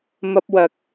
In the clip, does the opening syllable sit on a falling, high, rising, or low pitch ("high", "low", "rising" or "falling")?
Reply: high